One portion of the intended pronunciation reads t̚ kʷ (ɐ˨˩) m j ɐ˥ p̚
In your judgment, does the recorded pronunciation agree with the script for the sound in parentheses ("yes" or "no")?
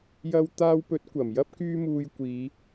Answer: yes